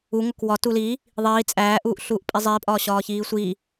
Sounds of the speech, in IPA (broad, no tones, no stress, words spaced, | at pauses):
u ŋokwɒ tuli | ðˤiː t͡sʼæːʔuːʔ ɬuːʔpʼizˤiːpʼɒː ɕɒːçiːsʷi